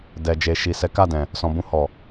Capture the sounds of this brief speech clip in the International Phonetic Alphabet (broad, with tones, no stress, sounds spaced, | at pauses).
d ɛ˨ d͡ʒ e˨ ʃ i˨ s ɛ˨˦ k a˦˨ d ɛ̃˨ | s ɔ̃˨ b ũ˧ h ɔ˨